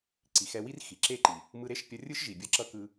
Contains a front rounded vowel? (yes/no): no